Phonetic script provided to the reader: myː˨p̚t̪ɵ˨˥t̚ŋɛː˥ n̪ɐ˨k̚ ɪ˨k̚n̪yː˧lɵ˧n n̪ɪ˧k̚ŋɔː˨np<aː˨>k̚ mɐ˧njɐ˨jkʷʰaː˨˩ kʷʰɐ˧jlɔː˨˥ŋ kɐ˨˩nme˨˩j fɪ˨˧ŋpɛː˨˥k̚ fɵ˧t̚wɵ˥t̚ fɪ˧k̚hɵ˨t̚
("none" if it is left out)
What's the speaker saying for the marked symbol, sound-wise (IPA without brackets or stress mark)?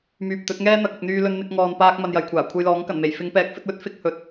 aː˧